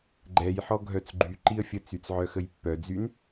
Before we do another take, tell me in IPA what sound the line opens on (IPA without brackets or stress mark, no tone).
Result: ɡ͡ǃ